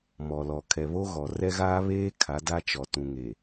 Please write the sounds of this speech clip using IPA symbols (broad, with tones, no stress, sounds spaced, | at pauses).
m ɔ˨ l ɔ˨ kʰ ɛ˨ β o˦ ɣ ɔ˨ r ɛ˦ ɣ aː˦ β eː˦ kʰ a˨˦ d a˦ t͡ʃ ɔ˨ t ũ˨ ŋ e˨